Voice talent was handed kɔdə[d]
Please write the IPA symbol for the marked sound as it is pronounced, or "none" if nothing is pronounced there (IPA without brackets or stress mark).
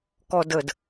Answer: d